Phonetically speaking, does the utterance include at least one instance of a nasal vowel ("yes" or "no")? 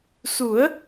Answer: no